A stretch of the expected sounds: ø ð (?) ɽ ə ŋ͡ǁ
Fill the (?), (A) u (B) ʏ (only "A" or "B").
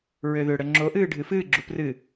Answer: B